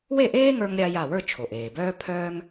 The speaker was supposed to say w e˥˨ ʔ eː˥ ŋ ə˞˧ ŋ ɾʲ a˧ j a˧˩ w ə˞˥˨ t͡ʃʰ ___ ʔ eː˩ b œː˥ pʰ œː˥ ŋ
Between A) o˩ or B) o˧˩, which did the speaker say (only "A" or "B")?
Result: A